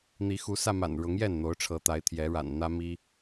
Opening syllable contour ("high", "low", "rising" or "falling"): rising